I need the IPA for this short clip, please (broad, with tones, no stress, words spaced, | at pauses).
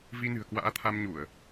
vi˧nɨ̤˨˩ə̯ kwa̰ː˧˥t̪ʰa˧mɲu˧˩˨ə̯